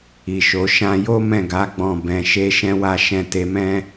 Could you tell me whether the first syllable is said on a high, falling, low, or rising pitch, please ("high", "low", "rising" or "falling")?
low